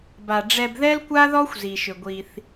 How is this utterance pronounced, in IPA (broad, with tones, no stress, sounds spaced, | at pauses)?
b a˨ ɖ͡ʐ ɛ˨ b ð ɛ˦ l kʷ a˦ ð ɔ˦ xʷ z i˨ ʃ ʏ˨ ɡʷ i˦ θ